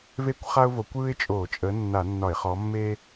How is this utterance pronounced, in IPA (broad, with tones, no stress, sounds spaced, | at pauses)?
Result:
v e˥ kʷ χ a˥ ʊ̯ v o˨˦ kʷ ɯ˥ ɪ̯ t͡ʃʼ o˧˩˧ t͡ʃʼ ə˨˦ nː a˧˩˧ nː ɒ˧˩˧ ɪ̯ χ ɔ˨˦ mː e˥